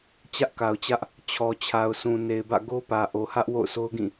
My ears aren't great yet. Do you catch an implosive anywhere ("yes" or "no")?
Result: no